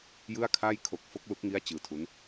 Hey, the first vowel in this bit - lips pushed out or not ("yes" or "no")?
no